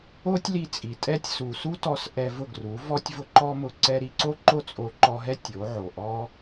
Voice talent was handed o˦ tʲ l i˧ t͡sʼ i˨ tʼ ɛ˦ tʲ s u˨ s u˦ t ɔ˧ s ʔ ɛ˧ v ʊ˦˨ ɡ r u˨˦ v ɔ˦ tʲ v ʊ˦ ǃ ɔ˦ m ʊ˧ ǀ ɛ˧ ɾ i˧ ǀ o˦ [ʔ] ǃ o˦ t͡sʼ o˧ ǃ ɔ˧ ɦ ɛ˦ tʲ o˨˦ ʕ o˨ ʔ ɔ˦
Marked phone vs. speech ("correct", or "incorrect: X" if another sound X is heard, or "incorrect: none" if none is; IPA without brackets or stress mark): incorrect: none